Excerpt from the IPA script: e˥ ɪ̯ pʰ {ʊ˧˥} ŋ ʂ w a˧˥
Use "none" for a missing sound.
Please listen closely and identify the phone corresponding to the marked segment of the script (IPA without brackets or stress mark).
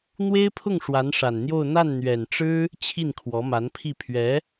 ʊ˥˩